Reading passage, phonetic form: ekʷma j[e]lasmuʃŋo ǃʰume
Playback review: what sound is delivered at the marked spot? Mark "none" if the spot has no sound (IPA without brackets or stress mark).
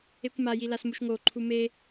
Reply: i